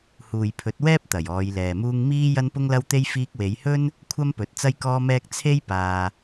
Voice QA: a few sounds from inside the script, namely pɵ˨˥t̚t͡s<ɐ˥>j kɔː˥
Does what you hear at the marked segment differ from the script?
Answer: no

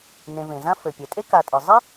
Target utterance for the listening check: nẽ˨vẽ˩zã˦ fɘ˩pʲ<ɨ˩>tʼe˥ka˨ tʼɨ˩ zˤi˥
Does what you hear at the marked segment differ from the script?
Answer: yes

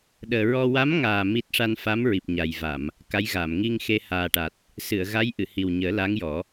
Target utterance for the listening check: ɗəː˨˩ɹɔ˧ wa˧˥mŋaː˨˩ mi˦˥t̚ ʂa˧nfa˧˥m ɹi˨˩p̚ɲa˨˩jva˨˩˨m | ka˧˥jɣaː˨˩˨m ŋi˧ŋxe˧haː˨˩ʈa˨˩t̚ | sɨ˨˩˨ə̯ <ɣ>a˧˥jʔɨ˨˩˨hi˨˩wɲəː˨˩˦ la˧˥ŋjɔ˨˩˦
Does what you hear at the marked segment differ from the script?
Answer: no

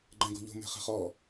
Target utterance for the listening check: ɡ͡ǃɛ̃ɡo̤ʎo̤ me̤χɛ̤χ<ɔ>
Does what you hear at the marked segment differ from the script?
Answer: no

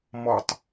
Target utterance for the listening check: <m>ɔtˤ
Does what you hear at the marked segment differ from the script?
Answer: no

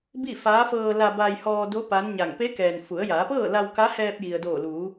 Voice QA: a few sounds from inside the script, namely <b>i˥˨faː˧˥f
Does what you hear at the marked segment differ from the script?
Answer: no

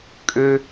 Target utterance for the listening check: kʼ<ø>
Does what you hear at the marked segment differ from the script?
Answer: no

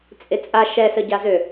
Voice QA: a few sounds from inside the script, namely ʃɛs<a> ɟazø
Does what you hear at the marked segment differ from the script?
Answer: yes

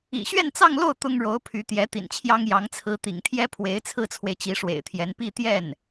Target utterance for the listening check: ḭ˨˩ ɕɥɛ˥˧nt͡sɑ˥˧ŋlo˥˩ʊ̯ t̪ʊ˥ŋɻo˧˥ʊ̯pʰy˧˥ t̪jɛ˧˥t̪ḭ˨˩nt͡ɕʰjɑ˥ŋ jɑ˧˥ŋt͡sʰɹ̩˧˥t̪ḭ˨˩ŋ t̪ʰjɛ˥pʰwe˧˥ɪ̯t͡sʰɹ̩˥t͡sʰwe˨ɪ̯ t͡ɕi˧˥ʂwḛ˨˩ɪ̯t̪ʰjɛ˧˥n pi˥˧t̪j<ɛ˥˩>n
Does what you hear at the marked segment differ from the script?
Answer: no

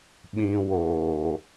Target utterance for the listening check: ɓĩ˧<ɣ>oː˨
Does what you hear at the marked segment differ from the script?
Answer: yes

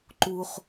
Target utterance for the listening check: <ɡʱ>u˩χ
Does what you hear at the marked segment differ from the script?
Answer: yes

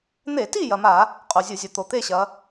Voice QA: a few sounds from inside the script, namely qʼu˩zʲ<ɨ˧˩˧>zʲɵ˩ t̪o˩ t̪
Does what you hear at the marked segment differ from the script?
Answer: no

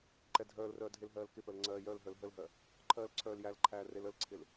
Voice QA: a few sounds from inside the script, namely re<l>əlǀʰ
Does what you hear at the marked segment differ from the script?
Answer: no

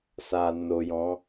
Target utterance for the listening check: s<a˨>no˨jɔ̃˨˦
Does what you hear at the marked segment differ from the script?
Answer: no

